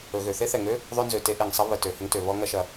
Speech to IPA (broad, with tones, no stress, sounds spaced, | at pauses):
ɵ˩ ɣ ø˩ θ e˥ θ ɛ˩ ŋ ø˥ | ðˤ ø˥ n z ø˩ t e˥ ʔ e˩ ŋ sˤ ə˥ β ə˩ t ø˩ h ə˥ ŋ t ø˩ β ɔ˥ ŋ ɐ˥ ʃ ɐ˩